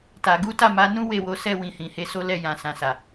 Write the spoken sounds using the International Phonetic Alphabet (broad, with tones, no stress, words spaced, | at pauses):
ta˨ ɡu˨˦ta˦˨ma˨˦nũ˦ we˦˨wo˨˦sɛ˦˨ wĩ˧hĩ˨he˨˦so˦ lɛ˦˨jã˨ sã˨sa˨